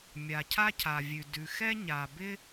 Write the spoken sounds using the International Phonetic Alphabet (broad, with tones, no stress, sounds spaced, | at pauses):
mʲ a˩ cʰ a˥ cʰ a˩ vʲ ʉ˩ d ʉ˩ x ɛ˥ ɲ a˩ b ɪ˥